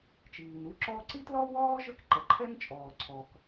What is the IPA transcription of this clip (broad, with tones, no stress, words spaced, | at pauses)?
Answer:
t͡ʃiː˩nu˥ǁɔ˥ ǀi˥tlɔ˥wɔː˥ ʒə˥k ǃɛ˩ǃʰɛ˥nt͡ʃʼɔː˩ǀʰɔ˩k